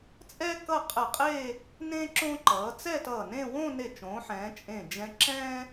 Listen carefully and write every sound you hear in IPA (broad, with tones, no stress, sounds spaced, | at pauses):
t͡sʼ ɛ˥ k ʌ˥˧ qʼ ɛ˧˩ qʼ e˥˧ | n ẽː˥ ǁ õ˥ ǃ ʌː˩˧ t͡s ɛ˥˧ t ʌː˧˩ n ẽ˥˧ w õː˥˧ n e˧˩ t͡ʃ õː˩˧ ħ ɛ̃ː˩˧ t͡ʃʼ ẽ˧˩ d͡ʒ ɛ̃˧ ǁ ɛ̃ː˥